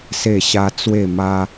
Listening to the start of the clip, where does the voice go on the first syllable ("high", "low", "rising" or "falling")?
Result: falling